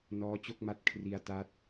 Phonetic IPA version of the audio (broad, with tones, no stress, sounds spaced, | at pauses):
n ɔː˦˥ t͡ɕ o˥˩ k̚ m a˦˥ t̚ kʰ r i˧ a̯ t a˦˥ t̚